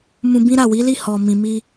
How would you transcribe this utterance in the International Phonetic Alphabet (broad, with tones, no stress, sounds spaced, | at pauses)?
m ũ˧ b ĩ˦ ɾ a˦˨ w i˨˦ l i˦˨ h ɔ˨ m ĩ˨ m i˧